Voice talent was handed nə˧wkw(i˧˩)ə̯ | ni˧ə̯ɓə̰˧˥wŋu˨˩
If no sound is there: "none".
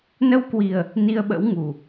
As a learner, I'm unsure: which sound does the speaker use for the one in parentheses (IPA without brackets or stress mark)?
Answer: i˨˩